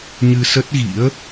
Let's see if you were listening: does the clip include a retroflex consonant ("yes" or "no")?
no